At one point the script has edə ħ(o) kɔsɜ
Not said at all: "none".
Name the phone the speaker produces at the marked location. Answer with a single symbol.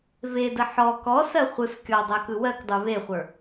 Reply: ɔ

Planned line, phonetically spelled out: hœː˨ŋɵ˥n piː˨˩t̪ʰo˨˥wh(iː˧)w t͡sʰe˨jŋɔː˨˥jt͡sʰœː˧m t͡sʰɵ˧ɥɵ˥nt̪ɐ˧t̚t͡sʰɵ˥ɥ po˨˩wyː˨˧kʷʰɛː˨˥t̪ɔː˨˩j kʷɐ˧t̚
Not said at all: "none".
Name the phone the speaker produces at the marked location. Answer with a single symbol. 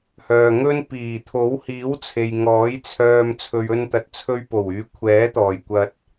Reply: iː˨˥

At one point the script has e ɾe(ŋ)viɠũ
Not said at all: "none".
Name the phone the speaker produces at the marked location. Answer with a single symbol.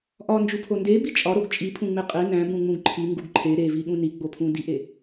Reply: none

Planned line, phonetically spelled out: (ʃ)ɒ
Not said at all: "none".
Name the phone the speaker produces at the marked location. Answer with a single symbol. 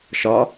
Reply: ʃ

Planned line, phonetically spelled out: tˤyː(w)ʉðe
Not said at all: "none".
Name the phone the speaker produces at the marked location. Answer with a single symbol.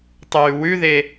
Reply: w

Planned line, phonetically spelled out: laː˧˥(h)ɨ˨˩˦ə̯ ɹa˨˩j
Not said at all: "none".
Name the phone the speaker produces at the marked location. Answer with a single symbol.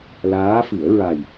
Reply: f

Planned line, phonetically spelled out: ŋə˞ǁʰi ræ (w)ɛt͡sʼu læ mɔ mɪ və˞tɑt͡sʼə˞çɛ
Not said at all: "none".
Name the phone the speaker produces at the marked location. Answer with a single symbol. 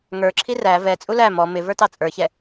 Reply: v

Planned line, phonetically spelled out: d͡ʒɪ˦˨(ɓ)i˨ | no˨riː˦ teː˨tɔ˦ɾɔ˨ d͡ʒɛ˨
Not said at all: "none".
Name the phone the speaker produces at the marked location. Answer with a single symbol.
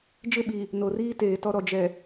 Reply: ɓ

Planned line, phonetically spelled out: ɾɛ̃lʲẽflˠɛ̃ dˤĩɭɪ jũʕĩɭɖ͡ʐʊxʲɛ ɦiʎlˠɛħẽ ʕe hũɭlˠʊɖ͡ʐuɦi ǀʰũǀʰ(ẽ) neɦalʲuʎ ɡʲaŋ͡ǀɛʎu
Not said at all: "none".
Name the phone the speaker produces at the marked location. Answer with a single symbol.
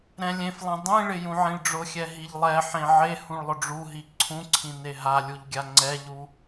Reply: ĩ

